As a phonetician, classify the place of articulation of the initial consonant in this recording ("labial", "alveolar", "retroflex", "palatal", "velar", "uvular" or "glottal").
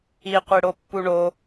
uvular